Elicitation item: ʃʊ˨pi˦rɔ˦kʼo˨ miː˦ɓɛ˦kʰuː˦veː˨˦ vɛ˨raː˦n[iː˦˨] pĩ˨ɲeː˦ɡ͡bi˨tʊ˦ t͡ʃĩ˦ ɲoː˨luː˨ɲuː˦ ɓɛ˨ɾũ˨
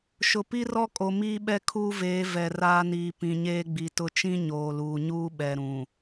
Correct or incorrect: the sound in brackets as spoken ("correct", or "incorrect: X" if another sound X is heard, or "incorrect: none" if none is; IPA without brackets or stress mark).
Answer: incorrect: iː˨